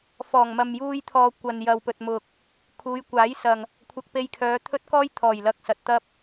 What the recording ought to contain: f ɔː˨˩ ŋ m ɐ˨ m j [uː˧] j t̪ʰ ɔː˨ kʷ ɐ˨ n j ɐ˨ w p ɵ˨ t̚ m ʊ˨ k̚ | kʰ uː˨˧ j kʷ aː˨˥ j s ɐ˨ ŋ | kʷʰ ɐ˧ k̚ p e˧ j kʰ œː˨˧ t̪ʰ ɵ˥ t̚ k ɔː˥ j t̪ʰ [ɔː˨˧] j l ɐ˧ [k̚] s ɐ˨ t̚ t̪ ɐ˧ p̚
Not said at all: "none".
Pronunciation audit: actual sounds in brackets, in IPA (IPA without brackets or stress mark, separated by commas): uː˧, ɔː˨˩, k̚